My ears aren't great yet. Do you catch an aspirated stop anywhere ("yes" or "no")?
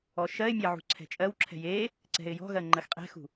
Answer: yes